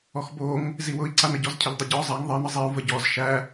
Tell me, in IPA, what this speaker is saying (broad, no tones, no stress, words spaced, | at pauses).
ɔxboŋ | ziwʊi̯ǀanə ɟɔzcʰəʎdˤʊɟɔ zˤæŋ ðˤɘi̯nə zˤiu̯və ɟɔz ʃæ